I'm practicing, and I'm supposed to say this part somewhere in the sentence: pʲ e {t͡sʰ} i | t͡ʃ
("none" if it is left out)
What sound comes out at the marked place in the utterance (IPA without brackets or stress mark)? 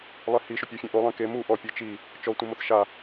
t͡ʃ